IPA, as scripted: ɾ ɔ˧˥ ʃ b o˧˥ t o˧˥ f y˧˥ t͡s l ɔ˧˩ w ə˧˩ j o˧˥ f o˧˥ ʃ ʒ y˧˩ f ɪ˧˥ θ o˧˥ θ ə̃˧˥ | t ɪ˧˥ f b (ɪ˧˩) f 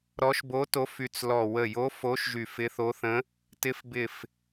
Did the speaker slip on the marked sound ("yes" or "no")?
no